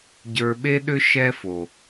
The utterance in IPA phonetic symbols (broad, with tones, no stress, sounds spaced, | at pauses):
ɟ ə˞˨ ɓ e˦ ɗ ʏ˦ ʃ ɛ˦ f o˨